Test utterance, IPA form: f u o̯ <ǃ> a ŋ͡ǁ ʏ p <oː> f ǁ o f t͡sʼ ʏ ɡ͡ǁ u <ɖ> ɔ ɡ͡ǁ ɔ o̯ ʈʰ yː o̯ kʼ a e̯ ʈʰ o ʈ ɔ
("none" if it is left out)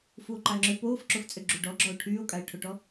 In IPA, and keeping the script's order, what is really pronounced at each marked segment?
ǃ, oː, ɖ

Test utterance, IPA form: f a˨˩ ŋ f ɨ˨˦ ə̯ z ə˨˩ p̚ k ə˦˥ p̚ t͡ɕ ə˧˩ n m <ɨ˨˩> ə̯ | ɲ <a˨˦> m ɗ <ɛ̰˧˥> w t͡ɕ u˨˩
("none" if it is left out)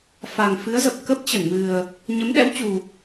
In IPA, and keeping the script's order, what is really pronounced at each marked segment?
ɨ˨˩, ə˨˦, ɛ̰˧˥

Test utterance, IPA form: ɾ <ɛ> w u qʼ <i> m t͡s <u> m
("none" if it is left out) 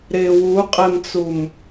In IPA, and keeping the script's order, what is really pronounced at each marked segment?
ɪ, e, u

